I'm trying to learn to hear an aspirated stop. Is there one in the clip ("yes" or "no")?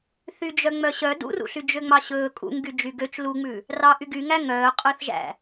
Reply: no